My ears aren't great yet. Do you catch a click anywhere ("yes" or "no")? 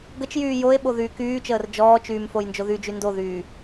no